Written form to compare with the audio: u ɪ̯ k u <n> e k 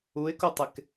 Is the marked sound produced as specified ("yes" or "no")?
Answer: no